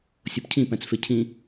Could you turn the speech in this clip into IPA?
sʲ o p cʰ ĩ p æ̃ t͡s f e cʰ ĩ

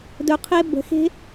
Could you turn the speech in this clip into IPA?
d ɵ˨ qʰ e˧ b ə̤˨ x e̤˦

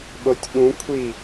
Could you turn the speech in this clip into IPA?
ɓ o tʲ ɠ ũ kʷʰ i

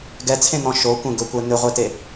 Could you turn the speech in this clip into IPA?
ɡ ɛ t͡sʰ ẽ n̪ ɔ̃ ʃ o kʷ ẽ ɡ ɵ kʷ ɛ n̪ ʏ ʁʷ e t e

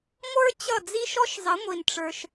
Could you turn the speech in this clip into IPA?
ŋʷ ə˞˦ t͡ɕ ʌ˦˨ d͡z i˦ ʃ ɔ˦ ʃ zˤ ə˨˦ ŋʷ i˨ n ʈ͡ʂ ə˞˧ ʃ

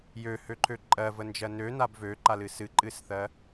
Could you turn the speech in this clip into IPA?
j ø h ø ǃʰ ø ǃʼ ɜ v ə n d͡ʒ ɜ n ø n a b v ø ǃ a l ɨ s ɨ ǃʼ ɨ s θ ɜ

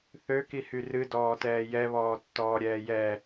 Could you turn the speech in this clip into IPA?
θ ø k i h y r ɨ d ɔː t ɛː j ɛ β ɔː tː ɔː ɾʲ ɛː j ɛ

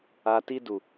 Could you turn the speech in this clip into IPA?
a˨ t i˧ d u˨

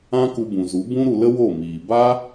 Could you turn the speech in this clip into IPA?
ã˦ k u˧ b ũ˨ z u˨˦ b ũ˦ ɾ u˧ l ə˦ w o˦˨ m iː˨ b a˦

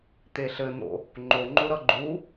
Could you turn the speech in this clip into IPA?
t̪ e ɬ ɘ n̪ o̰ | ŋ͡ǃ o ŋ͡ǃ o ɾ ʌ ɡ͡ǃ u

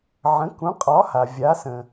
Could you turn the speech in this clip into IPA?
ʕ ə̃˩˥ k ũ˩˥ qʼ ɒ˩˥ h a˩ vʲ a˩˥ s ə̃˩

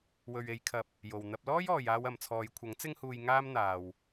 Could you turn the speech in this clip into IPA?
w ɵ˨ ɥ e˨˧ j kʰ ɐ˨ p̚ | j o˨ w n̪ ɐ˧ p̚ l ɔː˥ j ɔː˨ j aː˧ w ɐ˨ m t͡sʰ ɔː˨˧ j kʷʰ ɐ˨˥ ŋ t͡s ɪ˥ ŋ h uː˧ j ŋ aː˥ m n̪ aː˨ w

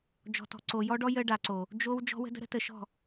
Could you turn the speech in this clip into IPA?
d͡ʒ ɔ̤˨ t ɔ̤˨ ǀ o˨ j ɔ˦ ɖ ɔ˦ j ə˦ ɖ a˨ ǀ o˨ | d͡ʒ o˦ w d͡ʒ ɔ̤˦ w ə̤˦ d ə̤˦ ɾ ə̤˦ t ə˨ ʃ ɔ̤˦˨

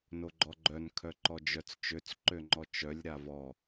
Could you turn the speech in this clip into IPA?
n o ɡ͡ǃ ɔ ɡ͡ǃ œ n kʰ œ ǃ ɔ d͡ʒ œ t͡s t͡ʃ ø t͡s ǃ ø ŋ͡ǃ ɔ t͡ʃ œ lʲ ɾ a v ɔ

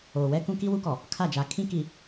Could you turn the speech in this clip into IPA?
oː˨ w ɛ˦ k ũ˦ k i˦ w u˦ k ɔ˨ | kʰ a˦˨ d͡ʒ a˨ kʰ ĩ˦ k i˨

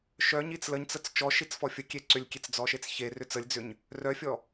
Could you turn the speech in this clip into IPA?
ʃ œ ɲ i t͡s l ə ɲ t͡s ə t͡s t͡ʃ ɔ ʃ i t͡s f ɔ fʲ ə kʲ e ǀ ʏ lʲ kʲ e t͡s d͡z ɔ ʃ e t͡s ç e r ʏ t͡s ə lʲ d͡z ʏ ɲ | r œ fʲ ɔ

